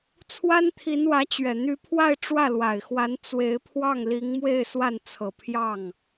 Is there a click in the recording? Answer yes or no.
no